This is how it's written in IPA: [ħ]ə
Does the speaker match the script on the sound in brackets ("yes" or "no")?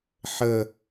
yes